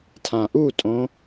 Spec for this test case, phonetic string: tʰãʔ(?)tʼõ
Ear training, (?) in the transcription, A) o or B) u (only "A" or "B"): B